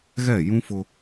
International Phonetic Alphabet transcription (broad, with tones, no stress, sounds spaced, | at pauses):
ɣ ɛ˦˨ j ũ˦ f ʊ˦